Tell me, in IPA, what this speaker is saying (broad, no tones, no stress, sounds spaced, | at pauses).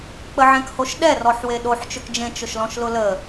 k͡p ə ʕ ɛ̃ k h o ʃ ɗ ɛ r ɔ ħ w e ɗ o ħ t͡ʃ ɵ k d͡ʒ ẽ t͡ʃ ʊ ʃ l ɔ̃ ʃ l ʊ l ə